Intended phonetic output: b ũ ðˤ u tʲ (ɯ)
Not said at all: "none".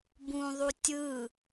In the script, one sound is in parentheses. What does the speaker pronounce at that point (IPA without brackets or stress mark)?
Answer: ɯ